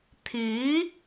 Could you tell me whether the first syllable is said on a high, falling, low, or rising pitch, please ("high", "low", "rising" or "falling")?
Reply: rising